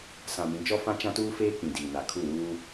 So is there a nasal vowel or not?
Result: yes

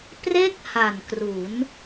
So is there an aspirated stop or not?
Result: no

